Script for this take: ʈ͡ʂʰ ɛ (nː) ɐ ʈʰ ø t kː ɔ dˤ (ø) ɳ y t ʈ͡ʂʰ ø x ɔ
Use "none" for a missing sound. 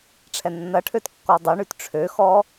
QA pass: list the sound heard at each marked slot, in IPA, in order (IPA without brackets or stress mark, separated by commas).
nː, ø